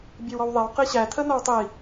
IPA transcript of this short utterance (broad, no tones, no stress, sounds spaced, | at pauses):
bʲ e w ɔ w ðˤ e w q i ɕ æ tʰ ə n ɔ w tˤ i